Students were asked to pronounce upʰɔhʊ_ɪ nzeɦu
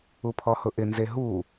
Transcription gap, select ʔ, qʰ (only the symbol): ʔ